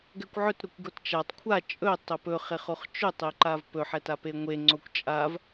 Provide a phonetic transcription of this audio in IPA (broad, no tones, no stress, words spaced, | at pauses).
ɡɛkʷʕɵtɾokʷɡot t͡ʃatˤ kʷʰa t͡ʃʼɵ tˤɵpɵχeχoχ t͡ʃɵtˤeǃav pɵħɛta peŋʷe ŋ͡ǀokʷt͡ʃʼav